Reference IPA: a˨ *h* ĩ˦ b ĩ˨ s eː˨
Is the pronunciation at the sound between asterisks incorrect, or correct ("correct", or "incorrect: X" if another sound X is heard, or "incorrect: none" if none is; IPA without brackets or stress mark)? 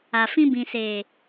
incorrect: f